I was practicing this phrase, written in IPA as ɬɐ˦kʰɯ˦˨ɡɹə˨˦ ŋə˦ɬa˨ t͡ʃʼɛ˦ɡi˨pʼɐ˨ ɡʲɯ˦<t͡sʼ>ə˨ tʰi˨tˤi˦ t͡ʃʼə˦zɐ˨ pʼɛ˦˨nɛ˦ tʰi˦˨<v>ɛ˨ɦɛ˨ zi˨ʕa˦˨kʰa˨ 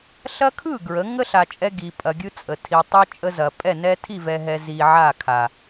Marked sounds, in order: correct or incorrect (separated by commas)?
correct, correct